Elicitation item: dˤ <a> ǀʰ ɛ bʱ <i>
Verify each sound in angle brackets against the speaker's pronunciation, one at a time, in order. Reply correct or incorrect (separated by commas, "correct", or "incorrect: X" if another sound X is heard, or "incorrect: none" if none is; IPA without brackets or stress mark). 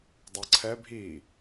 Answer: incorrect: ʌ, correct